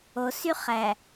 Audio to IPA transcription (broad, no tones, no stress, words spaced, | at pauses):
osy χæ